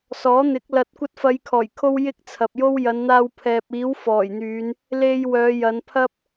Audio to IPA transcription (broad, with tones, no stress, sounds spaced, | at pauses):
s ɔː˨˥ n̪ ɪ˨˥ k̚ l ɐ˧ t̚ kʷ ɐ˧ t̚ f ɐ˨˧ j kʰ ɔː˨˩ j kʰ o˧ w j ɪ˥ k̚ t͡sʰ ɐ˨ p̚ j o˥ w j ɐ˨˧ n n̪ aː˧ w pʰ ɛː˨ p̚ iː˨˥ w f ɔː˨˩ j n̪ yː˨˧ n | l e˧ j w œː˨˧ j ɐ˨˧ n pʰ ɐ˥ p̚